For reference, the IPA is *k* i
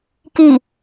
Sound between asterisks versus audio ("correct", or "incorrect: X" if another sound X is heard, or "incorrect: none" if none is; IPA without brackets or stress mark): correct